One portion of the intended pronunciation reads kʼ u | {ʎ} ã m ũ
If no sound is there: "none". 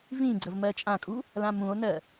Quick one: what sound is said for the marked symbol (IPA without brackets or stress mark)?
l